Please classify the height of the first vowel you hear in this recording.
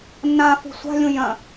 low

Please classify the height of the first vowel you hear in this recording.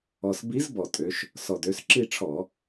mid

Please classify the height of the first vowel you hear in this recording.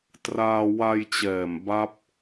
low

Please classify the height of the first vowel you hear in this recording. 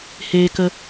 mid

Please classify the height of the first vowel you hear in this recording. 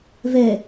mid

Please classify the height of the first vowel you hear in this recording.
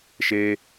mid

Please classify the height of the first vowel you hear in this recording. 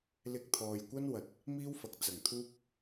high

